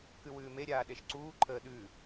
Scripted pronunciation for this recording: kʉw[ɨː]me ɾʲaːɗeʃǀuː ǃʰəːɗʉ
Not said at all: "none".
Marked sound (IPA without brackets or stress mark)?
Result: ʉː